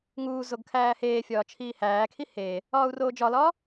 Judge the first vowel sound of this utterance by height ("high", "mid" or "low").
high